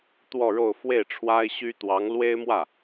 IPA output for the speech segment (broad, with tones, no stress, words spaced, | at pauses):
t̪wɔ˥˧ɻo˥˧ʊ̯ fwe˥˩ɪ̯ʈ͡ʂʰwa˥ɪ̯ ɕy˥t̪wɑ˧˥ŋ lwe˥ɪ̯mwä˥˩